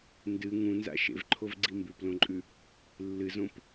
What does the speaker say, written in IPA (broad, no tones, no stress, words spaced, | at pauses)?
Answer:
ndɨ ŋũnza̰ ʃḛvǃʰovɡ͡ǀi mbʉplõǃʼʉ | lːɨzõp